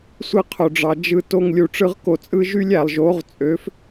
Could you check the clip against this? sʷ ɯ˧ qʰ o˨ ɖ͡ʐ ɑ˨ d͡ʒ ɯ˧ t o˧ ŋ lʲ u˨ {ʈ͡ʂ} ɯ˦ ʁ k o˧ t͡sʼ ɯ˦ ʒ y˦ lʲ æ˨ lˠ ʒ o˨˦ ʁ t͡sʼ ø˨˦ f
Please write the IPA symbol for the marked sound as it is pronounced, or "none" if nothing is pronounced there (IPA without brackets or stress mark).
ʈ͡ʂ